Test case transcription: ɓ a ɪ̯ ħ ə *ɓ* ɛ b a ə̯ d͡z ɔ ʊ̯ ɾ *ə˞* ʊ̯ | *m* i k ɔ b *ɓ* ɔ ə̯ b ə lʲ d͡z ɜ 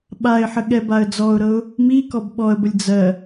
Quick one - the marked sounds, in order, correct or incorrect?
incorrect, incorrect, correct, correct

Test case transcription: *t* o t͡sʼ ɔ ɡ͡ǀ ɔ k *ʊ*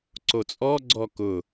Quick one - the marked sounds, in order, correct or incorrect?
incorrect, correct

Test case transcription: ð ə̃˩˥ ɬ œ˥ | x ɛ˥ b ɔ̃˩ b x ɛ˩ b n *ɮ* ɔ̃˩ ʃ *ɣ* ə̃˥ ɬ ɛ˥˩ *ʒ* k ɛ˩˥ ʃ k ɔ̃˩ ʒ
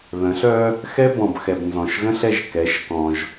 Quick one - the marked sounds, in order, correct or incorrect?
incorrect, correct, correct

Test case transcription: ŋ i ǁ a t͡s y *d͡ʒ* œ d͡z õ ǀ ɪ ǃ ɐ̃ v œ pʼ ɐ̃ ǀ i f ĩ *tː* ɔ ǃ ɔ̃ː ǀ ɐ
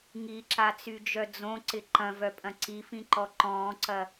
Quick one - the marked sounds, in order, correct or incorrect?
correct, incorrect

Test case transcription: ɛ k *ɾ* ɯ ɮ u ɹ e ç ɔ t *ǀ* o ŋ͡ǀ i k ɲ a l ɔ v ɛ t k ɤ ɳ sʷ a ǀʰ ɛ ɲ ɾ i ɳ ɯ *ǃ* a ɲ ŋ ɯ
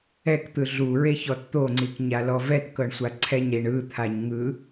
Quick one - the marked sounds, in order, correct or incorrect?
incorrect, incorrect, incorrect

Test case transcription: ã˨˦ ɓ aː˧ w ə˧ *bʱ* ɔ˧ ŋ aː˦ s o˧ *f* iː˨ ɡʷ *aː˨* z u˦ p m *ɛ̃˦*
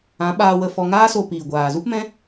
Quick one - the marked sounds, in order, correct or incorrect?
incorrect, incorrect, correct, correct

